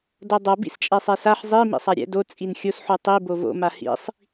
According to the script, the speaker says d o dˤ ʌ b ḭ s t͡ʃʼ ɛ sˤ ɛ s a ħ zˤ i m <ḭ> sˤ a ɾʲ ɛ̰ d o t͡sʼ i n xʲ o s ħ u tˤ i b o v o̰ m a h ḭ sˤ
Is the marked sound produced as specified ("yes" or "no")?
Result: yes